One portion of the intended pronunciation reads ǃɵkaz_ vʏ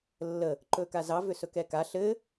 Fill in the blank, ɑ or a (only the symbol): ɑ